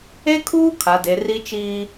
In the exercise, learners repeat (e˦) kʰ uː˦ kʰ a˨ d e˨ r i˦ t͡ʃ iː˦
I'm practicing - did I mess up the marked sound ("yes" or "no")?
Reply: no